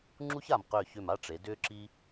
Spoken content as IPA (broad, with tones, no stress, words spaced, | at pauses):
ŋ͡ǁu˥ça˧˩mqʏː˧˩çʏ˧˩m a˥˧ʈ͡ʂe˩˧ dʏː˥ǁi˥